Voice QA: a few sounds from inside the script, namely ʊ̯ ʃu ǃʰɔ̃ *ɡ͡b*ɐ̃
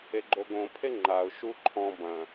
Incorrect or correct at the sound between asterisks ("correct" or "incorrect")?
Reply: incorrect